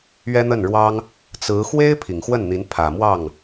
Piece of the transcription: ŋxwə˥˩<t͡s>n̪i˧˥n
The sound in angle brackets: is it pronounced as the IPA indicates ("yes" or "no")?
no